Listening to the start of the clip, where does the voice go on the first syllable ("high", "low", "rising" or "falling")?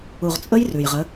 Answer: low